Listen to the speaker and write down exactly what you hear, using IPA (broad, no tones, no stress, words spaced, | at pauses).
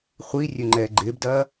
χʷi rʲøŋ͡ǃɛːɡ͡ǃɪːbdɐː